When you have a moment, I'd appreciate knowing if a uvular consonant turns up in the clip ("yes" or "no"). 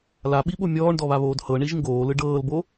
no